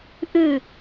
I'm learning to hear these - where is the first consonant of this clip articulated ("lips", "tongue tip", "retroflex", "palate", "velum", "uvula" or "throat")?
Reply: throat